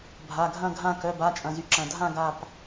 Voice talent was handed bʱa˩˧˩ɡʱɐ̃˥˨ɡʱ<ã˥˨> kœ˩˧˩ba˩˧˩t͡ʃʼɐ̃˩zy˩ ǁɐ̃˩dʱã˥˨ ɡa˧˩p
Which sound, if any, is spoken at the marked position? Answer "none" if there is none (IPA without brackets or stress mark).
ã˥˨